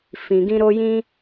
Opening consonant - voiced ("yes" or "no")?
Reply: no